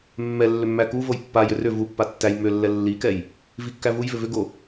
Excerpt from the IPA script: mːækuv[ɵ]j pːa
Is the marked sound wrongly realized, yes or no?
yes